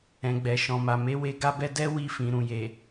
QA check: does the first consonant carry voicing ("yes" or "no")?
yes